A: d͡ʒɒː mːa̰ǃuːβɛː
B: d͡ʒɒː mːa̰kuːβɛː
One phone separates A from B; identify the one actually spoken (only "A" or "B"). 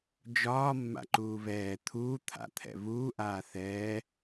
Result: A